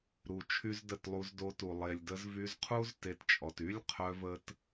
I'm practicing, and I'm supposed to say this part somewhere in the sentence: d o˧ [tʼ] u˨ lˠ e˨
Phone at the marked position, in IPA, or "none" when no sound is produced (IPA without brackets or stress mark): t